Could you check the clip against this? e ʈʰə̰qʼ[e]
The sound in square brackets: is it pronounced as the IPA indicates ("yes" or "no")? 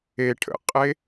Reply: yes